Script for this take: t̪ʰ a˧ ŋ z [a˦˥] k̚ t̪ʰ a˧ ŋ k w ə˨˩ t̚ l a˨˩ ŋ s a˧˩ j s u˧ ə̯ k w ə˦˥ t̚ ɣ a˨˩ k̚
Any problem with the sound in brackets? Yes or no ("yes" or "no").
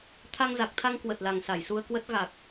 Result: yes